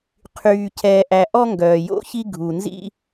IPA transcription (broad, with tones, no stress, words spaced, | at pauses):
qʰyː˨ cʰɛː˨ʔæ˨ ʔɔ˦ŋɡœː˨jo̰˦çi˦ ɡʱu˨ nzḭ˦